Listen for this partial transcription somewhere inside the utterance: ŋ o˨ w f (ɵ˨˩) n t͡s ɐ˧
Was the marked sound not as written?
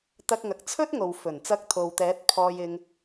no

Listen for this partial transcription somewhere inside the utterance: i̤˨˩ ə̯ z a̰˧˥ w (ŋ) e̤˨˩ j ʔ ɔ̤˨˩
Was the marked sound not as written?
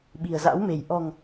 yes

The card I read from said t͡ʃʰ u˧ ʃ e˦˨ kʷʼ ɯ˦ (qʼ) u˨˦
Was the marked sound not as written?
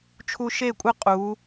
no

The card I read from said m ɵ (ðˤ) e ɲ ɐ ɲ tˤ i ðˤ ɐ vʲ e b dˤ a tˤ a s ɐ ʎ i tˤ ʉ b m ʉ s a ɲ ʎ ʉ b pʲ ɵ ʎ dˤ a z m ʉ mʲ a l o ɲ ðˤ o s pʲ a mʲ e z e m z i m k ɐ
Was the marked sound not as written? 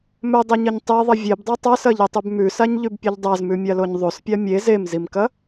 yes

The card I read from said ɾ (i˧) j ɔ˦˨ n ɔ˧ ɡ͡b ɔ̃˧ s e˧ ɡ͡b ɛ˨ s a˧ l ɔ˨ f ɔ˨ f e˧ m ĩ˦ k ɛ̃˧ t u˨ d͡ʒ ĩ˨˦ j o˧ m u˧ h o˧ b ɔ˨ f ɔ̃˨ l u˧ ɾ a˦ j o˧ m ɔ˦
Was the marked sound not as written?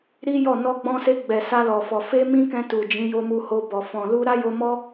yes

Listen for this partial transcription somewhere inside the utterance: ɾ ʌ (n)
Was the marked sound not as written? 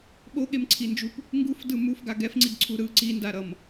yes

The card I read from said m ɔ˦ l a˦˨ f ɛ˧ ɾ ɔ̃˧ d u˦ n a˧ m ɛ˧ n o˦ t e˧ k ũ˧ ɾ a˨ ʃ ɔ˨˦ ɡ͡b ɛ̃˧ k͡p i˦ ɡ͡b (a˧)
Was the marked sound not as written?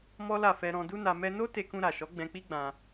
yes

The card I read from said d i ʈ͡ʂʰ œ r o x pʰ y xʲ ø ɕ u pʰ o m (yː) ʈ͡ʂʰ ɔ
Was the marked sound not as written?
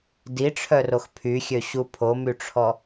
yes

